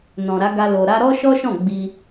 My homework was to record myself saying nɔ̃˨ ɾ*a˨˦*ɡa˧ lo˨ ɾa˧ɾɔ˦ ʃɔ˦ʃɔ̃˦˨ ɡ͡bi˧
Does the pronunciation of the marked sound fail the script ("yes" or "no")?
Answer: no